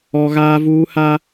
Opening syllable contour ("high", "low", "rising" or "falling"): high